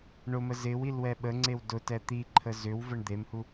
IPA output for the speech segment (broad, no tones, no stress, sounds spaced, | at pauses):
ɳ ʊ m ə z ɪ w i l w ɛ ɓ ə ŋ͡ǀ e w d ʊ t ɛ t̪ i ǃʰ ə z ʏ w v ə ɳ d̪ e m h u